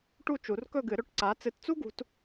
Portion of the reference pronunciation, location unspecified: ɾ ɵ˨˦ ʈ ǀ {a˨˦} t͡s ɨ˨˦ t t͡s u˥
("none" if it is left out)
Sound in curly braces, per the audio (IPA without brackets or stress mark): a˨˦